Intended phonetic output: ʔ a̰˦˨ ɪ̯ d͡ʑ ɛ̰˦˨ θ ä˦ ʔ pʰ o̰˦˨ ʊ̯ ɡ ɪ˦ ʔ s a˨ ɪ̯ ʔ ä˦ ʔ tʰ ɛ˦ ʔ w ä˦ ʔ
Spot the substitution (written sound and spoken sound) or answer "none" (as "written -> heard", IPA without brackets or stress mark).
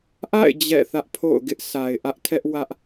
none